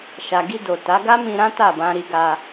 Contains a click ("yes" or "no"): no